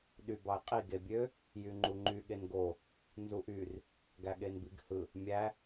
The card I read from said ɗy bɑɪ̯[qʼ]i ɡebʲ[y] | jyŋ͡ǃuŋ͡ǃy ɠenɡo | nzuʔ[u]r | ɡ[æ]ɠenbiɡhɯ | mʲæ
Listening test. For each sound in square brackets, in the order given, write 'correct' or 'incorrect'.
correct, incorrect, incorrect, correct

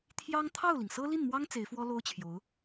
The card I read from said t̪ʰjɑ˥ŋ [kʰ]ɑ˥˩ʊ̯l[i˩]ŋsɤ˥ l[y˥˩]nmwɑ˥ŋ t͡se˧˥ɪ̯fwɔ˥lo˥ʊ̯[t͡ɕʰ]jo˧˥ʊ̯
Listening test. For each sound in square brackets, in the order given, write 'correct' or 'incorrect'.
incorrect, correct, incorrect, correct

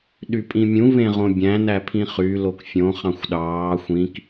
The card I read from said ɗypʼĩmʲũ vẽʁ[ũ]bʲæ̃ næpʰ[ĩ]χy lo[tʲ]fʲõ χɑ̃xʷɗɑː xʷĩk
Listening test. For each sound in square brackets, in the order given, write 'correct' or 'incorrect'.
incorrect, correct, incorrect

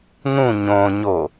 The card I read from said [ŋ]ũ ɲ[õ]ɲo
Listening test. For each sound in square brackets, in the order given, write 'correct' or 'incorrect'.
correct, correct

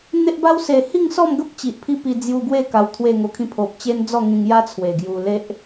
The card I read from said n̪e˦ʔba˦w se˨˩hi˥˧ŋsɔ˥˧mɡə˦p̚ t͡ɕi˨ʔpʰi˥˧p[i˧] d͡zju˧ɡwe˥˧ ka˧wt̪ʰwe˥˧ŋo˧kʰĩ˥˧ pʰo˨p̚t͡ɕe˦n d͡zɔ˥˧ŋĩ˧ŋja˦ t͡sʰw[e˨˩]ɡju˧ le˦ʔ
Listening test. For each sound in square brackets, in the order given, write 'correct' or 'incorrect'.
correct, correct

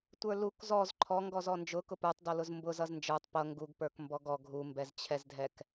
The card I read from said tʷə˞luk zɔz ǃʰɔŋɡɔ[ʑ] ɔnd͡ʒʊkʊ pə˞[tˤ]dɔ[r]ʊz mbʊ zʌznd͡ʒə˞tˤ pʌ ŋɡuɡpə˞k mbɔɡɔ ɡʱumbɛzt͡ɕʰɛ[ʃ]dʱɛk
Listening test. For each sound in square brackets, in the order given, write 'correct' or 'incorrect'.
incorrect, correct, incorrect, incorrect

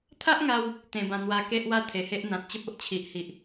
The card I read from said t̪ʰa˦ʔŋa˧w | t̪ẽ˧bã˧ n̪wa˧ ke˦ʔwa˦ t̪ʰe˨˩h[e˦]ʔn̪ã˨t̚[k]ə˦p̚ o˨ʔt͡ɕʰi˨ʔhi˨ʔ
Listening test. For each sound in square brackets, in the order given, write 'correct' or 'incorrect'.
correct, incorrect

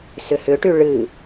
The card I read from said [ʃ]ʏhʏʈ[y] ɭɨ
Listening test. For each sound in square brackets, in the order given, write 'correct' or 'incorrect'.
incorrect, correct

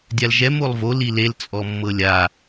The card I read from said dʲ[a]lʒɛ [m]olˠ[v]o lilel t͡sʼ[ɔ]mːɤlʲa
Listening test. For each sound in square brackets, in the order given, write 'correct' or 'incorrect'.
correct, correct, correct, correct

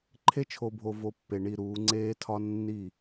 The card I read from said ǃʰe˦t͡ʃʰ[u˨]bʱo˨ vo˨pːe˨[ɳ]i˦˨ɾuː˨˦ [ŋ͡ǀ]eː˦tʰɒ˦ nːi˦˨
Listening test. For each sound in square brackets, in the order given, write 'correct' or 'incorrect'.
incorrect, correct, correct

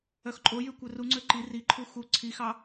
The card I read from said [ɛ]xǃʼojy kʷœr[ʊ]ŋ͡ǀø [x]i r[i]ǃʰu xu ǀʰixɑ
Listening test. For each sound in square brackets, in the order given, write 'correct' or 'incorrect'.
incorrect, incorrect, incorrect, correct

